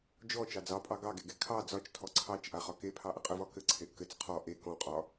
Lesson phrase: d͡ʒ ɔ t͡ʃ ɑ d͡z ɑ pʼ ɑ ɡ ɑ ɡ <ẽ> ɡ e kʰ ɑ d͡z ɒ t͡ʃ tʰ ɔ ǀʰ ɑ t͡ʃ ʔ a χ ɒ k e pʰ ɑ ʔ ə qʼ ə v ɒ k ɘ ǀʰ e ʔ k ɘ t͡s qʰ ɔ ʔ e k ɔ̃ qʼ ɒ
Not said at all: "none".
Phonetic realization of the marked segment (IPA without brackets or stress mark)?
e